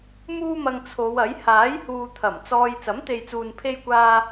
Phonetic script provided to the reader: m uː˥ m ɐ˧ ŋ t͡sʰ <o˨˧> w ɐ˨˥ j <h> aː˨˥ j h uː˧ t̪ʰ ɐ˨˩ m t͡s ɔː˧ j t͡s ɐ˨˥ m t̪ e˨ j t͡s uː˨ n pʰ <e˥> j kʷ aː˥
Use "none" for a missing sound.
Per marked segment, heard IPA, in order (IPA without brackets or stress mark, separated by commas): o˨˧, h, e˥